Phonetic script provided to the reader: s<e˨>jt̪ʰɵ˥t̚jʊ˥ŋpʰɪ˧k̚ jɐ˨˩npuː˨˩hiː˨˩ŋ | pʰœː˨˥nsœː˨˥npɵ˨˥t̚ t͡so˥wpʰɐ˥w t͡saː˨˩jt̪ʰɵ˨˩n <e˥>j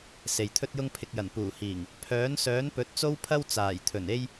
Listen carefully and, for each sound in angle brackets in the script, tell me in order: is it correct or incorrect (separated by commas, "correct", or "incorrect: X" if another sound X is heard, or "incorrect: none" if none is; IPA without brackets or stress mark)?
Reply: correct, correct